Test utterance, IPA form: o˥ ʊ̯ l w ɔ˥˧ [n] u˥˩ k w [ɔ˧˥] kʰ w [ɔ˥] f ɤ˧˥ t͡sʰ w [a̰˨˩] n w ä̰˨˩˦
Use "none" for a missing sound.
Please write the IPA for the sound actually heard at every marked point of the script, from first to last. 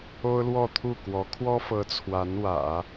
t̪ʰ, ɔ˧˥, ɔ˥, a˧˥

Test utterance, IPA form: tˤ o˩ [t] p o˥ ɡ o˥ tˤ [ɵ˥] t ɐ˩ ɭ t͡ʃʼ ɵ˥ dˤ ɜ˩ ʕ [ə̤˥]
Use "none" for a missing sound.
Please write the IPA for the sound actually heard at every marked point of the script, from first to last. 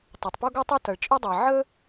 tˤ, ɵ˥, ə˥

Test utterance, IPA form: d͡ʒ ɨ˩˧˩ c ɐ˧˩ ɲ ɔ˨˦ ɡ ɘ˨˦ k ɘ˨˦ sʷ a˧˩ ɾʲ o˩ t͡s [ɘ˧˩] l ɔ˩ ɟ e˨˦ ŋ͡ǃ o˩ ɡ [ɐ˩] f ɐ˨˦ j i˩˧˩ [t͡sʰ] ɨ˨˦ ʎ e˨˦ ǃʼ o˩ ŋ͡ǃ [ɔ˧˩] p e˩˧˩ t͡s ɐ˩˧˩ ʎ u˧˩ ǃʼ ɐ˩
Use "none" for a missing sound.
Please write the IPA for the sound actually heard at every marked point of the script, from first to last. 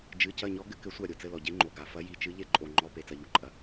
ɘ˧˩, a˩, t͡ʃ, ɔ˩˧˩

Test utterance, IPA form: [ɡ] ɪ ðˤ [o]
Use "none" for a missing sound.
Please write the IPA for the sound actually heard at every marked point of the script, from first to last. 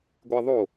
ɡʷ, o

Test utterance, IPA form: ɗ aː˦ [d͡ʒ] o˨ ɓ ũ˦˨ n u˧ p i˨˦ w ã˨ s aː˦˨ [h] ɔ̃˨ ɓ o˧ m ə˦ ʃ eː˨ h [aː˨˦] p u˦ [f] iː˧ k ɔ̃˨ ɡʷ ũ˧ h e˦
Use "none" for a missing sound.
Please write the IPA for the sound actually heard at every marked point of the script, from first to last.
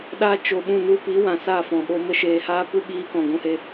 t͡ʃ, f, aː˦, ɓ

